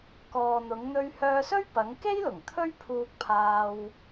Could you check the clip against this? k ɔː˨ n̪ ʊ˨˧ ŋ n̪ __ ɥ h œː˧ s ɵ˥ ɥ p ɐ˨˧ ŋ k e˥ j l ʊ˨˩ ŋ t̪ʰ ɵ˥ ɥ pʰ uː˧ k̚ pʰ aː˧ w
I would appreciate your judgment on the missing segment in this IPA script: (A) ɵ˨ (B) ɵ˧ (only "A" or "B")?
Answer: B